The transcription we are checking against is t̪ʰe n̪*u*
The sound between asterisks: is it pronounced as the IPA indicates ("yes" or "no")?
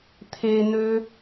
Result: no